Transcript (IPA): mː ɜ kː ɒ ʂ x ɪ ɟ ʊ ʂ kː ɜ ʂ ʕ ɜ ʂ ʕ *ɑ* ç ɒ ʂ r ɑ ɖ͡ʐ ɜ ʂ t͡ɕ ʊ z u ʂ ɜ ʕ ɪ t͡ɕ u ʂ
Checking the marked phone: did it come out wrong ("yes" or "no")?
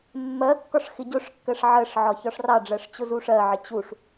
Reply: yes